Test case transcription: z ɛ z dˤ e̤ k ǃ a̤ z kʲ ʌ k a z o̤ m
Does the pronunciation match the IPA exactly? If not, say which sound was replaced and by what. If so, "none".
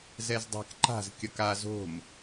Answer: none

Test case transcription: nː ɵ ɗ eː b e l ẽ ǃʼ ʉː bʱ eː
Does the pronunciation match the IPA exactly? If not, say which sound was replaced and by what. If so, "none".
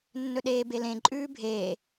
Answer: none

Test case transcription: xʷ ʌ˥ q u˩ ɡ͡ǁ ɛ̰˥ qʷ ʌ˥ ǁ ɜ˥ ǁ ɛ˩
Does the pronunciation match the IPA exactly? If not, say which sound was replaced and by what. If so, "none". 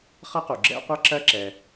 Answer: xʷ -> χ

